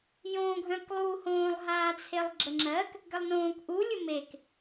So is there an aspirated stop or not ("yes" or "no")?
yes